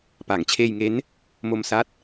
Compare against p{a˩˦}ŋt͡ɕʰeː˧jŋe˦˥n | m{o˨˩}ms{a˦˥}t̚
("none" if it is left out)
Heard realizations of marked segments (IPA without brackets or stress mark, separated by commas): a˩˦, o˧, a˦˥